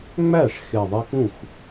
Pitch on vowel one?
falling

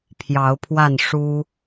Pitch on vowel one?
rising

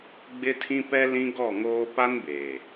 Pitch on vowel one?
high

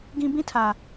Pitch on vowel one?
high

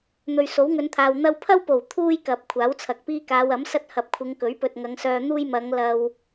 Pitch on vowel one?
low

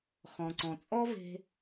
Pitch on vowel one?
low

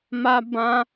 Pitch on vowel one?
high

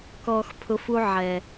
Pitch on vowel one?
low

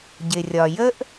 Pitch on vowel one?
low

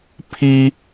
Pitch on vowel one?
high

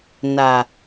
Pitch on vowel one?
low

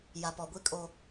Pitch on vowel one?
low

